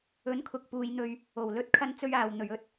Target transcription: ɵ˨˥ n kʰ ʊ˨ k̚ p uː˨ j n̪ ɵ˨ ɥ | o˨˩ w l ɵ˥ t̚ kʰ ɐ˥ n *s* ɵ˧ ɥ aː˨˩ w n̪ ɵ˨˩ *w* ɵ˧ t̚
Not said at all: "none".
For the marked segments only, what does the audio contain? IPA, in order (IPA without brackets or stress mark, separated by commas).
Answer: t͡s, ɥ